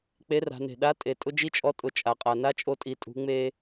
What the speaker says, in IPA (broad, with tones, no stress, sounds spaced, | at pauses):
k͡p e˧˥ r a̤˩˧ n e̤˩ ɗ a˧˥ tʼ e˩ tʼ ʊ˥ d͡ʒ i˥ t͡ʃʼ ɔ˧˥ tʼ ʊ˩˧ t͡ʃʼ a˩ qʼ a˩ n a˥ t͡ʃʼ o˧ tʼ i˩˧ tʼ ṳ˩˧ ŋ͡m e˧